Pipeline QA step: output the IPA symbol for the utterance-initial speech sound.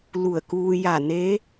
l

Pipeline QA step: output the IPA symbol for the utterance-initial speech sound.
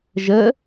ʒ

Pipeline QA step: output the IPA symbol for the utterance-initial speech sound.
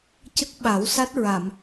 c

